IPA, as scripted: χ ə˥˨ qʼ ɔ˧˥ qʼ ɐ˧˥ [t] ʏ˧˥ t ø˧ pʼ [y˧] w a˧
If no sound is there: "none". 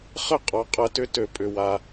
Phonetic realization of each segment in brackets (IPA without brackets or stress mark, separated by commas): t, ʏ˧